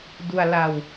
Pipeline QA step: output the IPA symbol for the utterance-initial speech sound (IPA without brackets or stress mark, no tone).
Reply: d